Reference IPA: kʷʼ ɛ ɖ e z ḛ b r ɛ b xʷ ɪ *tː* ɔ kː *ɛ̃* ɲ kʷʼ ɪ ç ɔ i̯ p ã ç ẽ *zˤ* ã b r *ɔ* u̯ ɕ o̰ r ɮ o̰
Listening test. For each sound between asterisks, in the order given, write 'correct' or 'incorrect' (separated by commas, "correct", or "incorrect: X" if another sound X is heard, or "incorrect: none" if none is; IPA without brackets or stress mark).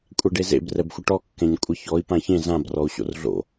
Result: incorrect: ʈ, correct, incorrect: z, correct